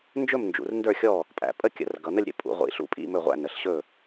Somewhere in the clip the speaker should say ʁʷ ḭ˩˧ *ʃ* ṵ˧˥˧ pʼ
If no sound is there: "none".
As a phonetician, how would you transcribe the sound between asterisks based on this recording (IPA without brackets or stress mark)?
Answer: ɬ